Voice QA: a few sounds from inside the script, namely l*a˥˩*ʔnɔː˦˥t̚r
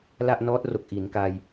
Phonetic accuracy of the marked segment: correct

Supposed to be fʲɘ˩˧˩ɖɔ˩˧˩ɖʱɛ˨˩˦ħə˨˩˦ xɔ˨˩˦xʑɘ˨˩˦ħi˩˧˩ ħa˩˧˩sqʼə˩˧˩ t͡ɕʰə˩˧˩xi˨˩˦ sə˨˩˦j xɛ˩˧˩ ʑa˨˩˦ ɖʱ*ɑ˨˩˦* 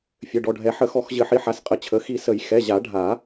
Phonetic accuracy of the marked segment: incorrect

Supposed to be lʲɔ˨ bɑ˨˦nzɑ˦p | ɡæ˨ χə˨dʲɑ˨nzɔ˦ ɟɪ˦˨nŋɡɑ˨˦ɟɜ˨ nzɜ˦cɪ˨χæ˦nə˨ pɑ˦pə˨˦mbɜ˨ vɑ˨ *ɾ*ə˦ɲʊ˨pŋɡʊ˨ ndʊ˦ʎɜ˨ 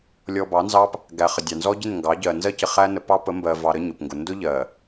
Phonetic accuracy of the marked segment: correct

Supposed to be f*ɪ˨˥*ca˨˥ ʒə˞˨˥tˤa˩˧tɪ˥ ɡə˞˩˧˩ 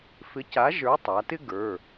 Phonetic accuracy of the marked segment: correct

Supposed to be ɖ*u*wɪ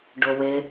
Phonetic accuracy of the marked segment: incorrect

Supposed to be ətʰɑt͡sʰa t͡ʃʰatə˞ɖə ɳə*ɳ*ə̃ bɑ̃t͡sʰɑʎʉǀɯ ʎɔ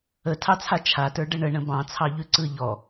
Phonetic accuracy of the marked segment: correct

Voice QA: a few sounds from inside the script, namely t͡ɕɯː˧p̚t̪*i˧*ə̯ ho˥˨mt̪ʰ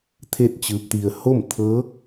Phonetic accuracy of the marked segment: correct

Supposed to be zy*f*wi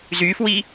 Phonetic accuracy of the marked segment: correct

